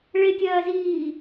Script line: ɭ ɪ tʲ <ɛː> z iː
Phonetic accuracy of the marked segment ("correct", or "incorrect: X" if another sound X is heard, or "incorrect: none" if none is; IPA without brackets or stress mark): incorrect: ɜː